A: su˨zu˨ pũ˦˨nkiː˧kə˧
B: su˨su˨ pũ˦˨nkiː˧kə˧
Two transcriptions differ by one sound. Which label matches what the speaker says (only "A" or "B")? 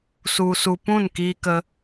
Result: B